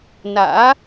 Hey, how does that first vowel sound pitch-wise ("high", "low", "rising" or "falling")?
rising